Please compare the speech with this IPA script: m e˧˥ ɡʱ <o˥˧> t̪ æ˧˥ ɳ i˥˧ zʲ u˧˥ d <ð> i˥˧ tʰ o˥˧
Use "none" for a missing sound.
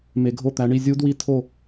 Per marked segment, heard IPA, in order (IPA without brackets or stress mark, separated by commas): o˥˧, w